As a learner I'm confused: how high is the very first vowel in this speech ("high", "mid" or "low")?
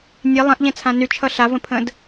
mid